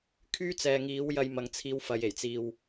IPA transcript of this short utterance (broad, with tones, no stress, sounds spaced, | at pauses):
kʰ yː˥ t͡s ɛː˨ ŋ iː˨˥ w j ɐ˧ j m ɐ˨ ŋ t͡sʰ iː˨˧ w f ɐ˨ j e˨˩ j t͡s iː˧ w